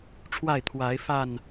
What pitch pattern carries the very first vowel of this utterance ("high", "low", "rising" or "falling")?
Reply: falling